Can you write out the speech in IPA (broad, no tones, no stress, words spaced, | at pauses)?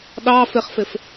ɗɑ fɪχfɪf